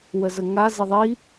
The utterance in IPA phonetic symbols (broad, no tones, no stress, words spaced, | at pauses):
wəzəŋa zɪðˤi